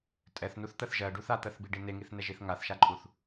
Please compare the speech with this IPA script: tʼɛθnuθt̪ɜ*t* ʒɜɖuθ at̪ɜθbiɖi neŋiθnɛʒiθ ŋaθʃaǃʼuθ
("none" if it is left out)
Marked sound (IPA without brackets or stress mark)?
θ